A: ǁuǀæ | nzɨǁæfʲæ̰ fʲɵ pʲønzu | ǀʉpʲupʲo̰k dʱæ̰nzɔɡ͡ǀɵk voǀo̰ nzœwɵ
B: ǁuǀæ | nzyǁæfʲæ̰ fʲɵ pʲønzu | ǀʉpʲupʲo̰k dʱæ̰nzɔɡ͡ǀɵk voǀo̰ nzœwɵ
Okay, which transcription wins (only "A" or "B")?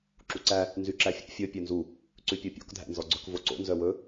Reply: B